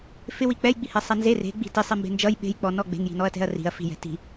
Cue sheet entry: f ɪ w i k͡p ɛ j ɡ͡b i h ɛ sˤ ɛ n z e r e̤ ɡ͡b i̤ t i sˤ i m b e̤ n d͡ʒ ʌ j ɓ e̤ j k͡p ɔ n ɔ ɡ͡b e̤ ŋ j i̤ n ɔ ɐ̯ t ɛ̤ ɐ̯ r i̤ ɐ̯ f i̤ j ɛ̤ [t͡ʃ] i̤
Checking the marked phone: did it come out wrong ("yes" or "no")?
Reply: yes